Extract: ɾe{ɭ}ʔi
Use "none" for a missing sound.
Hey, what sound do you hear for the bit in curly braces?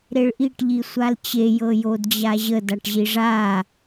ɭ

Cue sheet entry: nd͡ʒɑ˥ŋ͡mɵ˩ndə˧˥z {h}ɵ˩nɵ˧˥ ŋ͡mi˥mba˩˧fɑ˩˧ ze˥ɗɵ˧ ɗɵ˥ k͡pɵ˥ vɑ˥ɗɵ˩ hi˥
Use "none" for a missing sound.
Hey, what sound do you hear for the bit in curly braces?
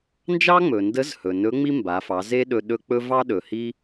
h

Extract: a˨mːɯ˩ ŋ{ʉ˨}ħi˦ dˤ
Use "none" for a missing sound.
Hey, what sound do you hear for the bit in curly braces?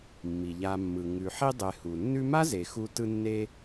ʉ˨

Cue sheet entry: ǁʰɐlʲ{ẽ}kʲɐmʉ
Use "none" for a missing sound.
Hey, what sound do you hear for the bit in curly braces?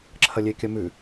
e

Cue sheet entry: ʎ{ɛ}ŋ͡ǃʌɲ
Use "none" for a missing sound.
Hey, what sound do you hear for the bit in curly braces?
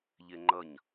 e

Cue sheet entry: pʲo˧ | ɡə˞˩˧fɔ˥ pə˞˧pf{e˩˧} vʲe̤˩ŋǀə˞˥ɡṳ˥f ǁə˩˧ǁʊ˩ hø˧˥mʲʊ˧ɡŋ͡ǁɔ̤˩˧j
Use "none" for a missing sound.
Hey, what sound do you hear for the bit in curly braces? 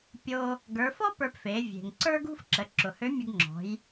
e˩˧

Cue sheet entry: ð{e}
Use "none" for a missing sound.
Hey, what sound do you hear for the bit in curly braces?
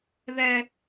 ɛ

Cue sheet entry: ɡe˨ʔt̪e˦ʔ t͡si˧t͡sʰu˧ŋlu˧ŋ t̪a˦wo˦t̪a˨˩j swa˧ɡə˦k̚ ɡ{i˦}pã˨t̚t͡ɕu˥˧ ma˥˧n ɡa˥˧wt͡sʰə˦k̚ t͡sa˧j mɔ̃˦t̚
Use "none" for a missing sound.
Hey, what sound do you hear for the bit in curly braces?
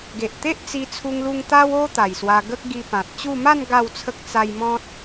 i˧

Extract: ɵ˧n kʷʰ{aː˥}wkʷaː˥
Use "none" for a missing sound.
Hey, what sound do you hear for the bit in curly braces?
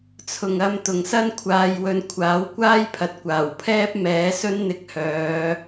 aː˨˥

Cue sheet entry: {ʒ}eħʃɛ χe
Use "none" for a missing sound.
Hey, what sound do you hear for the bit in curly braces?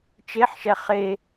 t͡ʃ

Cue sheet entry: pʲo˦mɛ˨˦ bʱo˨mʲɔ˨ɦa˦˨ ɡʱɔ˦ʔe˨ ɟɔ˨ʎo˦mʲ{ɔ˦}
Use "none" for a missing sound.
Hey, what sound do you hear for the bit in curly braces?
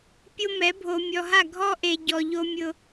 ʊ˦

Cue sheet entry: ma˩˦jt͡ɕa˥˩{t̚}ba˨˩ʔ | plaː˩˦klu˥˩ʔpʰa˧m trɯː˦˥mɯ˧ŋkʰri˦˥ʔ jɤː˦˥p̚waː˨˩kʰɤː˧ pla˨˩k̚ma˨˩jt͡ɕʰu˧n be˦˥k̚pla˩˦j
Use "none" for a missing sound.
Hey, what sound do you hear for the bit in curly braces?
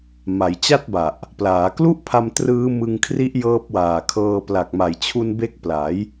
t̚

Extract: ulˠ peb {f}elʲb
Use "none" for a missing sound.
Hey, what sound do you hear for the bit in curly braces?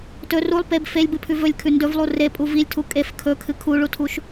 f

